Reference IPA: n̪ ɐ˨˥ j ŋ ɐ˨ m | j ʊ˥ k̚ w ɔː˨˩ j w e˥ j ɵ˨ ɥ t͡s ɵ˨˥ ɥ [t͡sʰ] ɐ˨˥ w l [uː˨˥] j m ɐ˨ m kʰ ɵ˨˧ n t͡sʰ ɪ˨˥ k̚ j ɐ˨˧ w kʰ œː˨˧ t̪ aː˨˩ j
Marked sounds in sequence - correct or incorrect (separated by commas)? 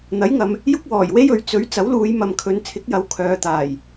incorrect, incorrect